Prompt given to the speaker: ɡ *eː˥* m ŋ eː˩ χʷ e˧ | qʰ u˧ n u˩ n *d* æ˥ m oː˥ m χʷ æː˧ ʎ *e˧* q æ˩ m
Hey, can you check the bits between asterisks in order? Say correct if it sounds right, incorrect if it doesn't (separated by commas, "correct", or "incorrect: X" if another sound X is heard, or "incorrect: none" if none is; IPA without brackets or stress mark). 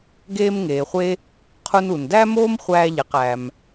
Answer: incorrect: eː˧, correct, incorrect: e˩